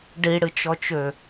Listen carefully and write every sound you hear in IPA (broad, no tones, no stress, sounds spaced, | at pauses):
ɖ i ɽ ɨ t͡ʃ ɔ t͡ʃ ø